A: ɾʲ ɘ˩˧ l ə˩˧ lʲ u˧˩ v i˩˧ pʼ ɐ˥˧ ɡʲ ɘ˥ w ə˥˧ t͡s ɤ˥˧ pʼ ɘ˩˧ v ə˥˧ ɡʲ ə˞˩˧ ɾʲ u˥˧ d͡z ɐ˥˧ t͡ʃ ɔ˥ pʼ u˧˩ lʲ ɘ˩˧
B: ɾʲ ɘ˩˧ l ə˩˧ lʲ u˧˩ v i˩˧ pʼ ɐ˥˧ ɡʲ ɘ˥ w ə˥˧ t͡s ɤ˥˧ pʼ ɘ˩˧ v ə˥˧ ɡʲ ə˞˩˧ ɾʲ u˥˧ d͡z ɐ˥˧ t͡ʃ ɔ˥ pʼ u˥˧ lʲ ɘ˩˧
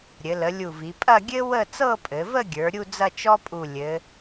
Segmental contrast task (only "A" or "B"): A